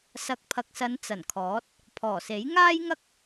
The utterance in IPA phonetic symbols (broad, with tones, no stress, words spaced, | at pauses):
sɐ˨˥k̚pʰɐ˨k̚sɐ˨˧n t͡sɐ˨˩nkʰɔː˨˥t̚ | pʰɔː˨˩se˨˥j ŋaː˥jŋɐ˥k̚